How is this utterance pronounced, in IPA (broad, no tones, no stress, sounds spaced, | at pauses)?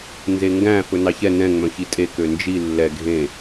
n z e ŋ ɡ æ̃ f ɵ n ɑ ç ɛ n ɛ̃ ŋ͡m œ̃ ç i tʼ e k ø n d͡ʒ i lː ɛ ɡʱ ẽ